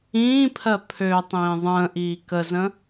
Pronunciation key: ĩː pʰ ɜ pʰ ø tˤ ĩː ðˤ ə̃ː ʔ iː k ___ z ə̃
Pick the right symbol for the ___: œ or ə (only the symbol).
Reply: ə